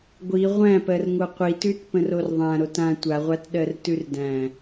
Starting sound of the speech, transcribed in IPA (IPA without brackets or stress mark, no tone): ɡʷ